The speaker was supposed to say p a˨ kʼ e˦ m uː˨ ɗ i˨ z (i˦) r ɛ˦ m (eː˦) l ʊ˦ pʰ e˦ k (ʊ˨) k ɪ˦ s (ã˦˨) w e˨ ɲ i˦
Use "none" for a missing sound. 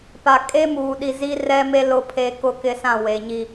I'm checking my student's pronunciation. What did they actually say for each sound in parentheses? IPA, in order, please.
i˦, e˦, ʊ˦, ã˦˨

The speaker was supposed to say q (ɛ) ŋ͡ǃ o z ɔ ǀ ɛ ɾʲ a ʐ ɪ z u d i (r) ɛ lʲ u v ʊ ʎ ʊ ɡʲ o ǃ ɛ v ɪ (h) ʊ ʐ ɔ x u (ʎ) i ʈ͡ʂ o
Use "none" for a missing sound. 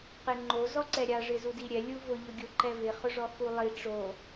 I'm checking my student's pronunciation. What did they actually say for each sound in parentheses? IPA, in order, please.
e, ɾʲ, χ, lˠ

